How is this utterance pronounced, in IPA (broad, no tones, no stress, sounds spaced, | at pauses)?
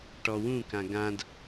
ʈ ɔ w ũ k ã ɡ ã d